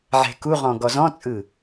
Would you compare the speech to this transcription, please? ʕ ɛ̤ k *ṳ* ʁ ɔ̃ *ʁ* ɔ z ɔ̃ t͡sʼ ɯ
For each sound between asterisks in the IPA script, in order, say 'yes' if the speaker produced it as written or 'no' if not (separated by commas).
no, no